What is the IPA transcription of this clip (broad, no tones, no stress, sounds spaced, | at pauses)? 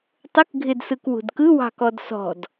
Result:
tˤ ə k ɡʱ ɪ d s ɯ k w ṳ d k ɯ w ɑ̤ k ɔ d s ɔ̤ d